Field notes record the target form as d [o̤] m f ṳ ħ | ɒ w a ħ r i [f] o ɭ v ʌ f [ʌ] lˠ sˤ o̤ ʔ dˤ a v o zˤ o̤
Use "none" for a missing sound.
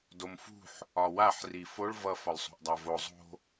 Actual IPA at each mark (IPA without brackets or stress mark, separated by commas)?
o, f, ɒ